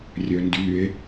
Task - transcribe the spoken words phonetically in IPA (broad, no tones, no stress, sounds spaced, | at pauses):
rʲ œ n d y e̯